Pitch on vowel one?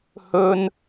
high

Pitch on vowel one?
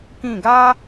falling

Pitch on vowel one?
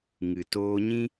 low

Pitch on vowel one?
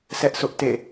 high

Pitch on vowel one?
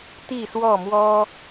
falling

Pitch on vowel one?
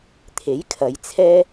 rising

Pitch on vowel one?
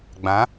rising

